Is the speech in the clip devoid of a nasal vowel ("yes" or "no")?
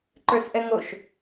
yes